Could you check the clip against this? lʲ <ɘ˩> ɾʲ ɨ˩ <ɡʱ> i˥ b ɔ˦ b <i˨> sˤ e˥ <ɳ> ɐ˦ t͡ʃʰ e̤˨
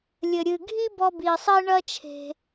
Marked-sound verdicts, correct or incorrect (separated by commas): correct, correct, correct, correct